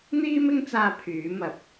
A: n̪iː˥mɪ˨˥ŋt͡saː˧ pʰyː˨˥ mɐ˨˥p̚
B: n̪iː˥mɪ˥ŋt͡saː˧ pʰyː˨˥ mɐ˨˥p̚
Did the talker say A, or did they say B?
B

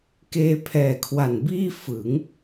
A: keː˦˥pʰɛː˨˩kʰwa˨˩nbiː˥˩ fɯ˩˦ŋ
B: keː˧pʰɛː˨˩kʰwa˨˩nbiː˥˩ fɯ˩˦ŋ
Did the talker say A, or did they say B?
B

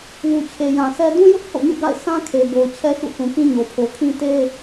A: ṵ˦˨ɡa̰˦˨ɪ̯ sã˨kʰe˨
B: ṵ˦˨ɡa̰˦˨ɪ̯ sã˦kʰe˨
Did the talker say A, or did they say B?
B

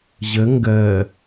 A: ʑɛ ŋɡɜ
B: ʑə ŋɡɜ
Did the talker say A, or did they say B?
B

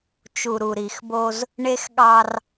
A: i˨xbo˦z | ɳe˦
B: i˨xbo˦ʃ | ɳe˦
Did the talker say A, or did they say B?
A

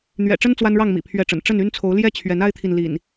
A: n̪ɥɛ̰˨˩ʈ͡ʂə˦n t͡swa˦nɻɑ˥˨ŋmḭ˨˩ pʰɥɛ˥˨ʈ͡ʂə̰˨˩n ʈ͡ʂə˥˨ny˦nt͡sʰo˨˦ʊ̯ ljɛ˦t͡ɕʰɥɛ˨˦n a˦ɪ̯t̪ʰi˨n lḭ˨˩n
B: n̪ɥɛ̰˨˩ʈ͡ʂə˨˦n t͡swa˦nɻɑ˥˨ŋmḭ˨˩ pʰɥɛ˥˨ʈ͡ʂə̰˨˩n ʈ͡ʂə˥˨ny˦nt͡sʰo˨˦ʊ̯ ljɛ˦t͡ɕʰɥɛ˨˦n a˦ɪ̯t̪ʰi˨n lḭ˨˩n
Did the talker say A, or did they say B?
A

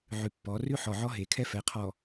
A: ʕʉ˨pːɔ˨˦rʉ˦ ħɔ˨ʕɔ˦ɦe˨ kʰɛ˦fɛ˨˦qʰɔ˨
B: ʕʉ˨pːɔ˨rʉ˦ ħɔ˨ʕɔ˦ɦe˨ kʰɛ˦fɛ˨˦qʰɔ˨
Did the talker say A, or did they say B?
A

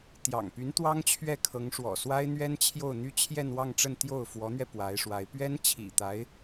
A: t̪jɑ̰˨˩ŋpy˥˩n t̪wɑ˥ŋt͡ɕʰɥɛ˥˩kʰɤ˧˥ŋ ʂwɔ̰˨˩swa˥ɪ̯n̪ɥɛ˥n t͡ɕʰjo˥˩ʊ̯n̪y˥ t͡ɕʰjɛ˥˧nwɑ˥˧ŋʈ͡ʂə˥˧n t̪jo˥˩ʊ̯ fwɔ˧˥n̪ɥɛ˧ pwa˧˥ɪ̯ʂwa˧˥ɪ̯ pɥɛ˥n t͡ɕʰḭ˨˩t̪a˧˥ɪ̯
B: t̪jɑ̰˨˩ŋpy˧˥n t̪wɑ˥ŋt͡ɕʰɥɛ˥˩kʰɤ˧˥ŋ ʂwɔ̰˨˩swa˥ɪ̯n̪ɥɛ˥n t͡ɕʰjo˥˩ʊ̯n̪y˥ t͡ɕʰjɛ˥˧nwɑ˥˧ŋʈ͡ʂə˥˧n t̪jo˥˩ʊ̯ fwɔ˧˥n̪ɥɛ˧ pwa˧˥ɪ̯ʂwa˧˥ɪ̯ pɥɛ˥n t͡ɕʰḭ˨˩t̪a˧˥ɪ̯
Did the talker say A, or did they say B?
B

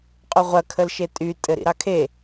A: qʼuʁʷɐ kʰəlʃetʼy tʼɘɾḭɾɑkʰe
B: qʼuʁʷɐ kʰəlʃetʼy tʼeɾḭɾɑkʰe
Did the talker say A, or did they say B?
A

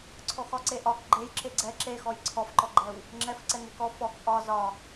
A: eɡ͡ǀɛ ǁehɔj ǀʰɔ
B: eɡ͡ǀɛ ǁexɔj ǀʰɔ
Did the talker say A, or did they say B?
B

